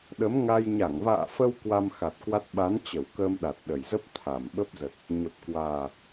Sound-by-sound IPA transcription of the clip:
ɗə˨˦mŋa˧j ɲa˧˩ŋva̰ː˧˨fə˧w kwa˧mxa˨˩t̚kwa˦˥t̚ ɓa˨˦nt͡ɕə˧˩wkəː˧m ɗa˨˩t̚ɗə˨˩jzə˦˥p̚ t̪ʰa˨˩mɓə˦˥p̚zə˨˩t̚ | ɲə˨˩p̚kwaː˨˩

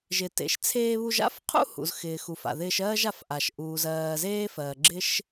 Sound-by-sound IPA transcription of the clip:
ʒɪ˩tḛ˩ʃt͡sʰeː˧βu˧ʒ a̰˥fqʰṵ˥ hṵ˩zxɪː˩xu˩f a̰˩ðɪː˧ʃɜː˥ʒa˧f ʔa˩ʃʔuː˩z ɜː˩zeː˥fɜː˩ɡ͡ǁɪ˥ʃ

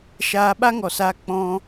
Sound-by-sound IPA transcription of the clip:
ʃaː˧ɓa˦ŋɔ˨saː˧ k͡pɔ̃˧

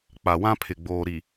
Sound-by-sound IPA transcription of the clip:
k͡pa˨wã˦ pʰɪ˨ɡ͡boː˨ɾi˨

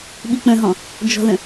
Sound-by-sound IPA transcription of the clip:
ɓik͡pə̃ɦɔ̃ | d͡ʒɔ̤ðə̃

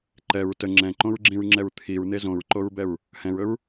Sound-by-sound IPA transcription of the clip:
ǃɛɹ tə ŋ͡ǁɛ̃ǃõɹɡ͡ǁĩɹŋ͡ǁɛɹ t̪ʰiɹn̪e zõɹǃoɹbɛɹ | hɛ̃ɹɵɹ

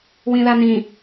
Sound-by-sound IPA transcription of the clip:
wĩðanĩ

